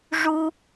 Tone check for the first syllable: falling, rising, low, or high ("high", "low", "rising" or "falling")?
high